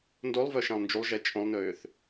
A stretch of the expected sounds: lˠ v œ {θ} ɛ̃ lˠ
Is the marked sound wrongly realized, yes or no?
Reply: yes